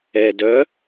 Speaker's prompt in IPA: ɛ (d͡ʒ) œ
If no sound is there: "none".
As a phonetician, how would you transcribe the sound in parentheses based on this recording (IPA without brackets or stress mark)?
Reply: d